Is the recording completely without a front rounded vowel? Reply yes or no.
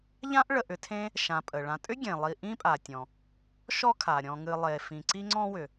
no